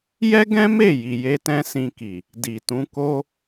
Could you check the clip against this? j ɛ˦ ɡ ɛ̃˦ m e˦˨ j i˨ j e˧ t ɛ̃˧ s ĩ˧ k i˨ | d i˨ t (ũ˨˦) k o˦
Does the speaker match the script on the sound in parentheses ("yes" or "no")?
yes